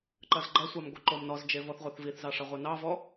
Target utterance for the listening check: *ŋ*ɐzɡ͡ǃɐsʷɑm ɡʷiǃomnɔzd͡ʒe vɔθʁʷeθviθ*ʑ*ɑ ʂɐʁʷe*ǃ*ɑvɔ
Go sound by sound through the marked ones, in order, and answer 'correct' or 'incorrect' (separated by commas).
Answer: incorrect, incorrect, incorrect